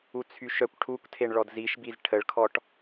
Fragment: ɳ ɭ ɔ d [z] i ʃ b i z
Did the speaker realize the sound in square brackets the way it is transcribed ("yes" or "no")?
yes